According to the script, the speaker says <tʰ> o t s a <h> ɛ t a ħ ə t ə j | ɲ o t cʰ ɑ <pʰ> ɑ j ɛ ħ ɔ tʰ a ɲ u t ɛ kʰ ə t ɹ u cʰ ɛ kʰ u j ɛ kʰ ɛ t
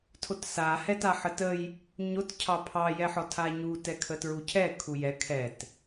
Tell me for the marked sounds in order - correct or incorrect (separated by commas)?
correct, correct, correct